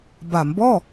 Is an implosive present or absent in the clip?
absent